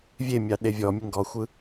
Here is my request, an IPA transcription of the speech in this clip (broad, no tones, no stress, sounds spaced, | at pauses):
vʲ e mʲ ɑ ɗ e vʲ ɔ mʲ ə ŋ ɡ ɔ xʷ ɯ